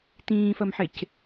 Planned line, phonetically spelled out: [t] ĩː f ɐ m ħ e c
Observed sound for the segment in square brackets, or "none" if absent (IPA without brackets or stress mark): t